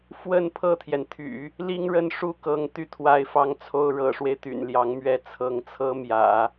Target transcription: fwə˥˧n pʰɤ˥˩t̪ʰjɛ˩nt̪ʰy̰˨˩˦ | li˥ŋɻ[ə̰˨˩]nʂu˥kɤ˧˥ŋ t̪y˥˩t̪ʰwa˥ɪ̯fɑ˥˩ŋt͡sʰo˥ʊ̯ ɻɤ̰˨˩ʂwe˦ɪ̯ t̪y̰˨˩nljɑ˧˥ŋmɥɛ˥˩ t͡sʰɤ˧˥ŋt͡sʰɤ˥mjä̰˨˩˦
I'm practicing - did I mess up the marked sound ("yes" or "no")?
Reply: yes